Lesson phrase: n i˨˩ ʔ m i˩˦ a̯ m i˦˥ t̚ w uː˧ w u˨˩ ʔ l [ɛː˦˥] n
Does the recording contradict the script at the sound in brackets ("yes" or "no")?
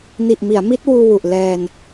yes